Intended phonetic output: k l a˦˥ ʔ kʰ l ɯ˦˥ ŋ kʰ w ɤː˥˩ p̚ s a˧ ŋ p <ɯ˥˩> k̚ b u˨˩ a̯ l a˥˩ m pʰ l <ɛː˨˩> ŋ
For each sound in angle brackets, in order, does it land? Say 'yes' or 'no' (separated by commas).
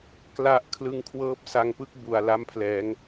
yes, no